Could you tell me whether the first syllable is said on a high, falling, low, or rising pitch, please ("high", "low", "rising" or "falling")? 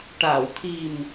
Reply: low